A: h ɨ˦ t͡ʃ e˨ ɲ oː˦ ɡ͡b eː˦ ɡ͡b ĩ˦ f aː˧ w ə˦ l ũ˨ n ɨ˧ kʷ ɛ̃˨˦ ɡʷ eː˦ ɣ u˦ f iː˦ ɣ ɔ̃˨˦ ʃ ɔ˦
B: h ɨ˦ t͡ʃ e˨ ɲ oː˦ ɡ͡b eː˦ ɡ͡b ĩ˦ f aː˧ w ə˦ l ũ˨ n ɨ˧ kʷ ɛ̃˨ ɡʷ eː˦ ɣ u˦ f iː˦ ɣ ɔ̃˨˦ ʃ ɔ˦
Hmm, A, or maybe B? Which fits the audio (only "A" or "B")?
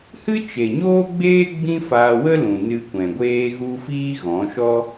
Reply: B